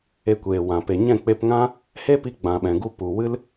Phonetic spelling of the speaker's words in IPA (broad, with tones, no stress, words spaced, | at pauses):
e˧kʷeː˨wã˨ pe˨ɲɛ̃˦˨k͡pe˧pŋã˦ | he˦pi˧ ɡ͡bã˨ɓɛ̃˨ɡu˧ pu˨wɨ˦l